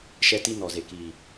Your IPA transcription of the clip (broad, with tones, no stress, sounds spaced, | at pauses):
ʃ ɛ˦ t i˦ n ɔ˨ z e˨ k iː˨